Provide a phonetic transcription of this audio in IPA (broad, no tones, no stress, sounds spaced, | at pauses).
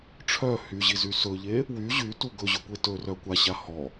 ʈ͡ʂʰ œ h y ʑ i z y s ɵ ʎ e | w y ʑ y t u ɡ ɵ ʑ ɵ kʷ e t ɵ r œ kʷ a ɕ a h ɔ